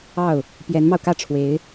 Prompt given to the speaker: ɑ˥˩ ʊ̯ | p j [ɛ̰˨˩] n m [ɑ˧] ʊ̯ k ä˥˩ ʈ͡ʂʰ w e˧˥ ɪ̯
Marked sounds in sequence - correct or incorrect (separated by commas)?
incorrect, correct